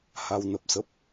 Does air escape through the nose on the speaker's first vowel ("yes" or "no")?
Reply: no